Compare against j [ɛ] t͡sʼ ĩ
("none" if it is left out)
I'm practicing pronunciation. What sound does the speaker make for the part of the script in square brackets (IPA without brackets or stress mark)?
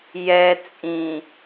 ɛ